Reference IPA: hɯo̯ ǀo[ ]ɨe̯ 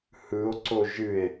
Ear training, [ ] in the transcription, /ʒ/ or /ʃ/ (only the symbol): ʒ